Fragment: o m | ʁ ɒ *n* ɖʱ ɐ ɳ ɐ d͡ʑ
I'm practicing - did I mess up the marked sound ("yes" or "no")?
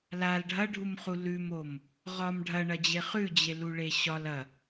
yes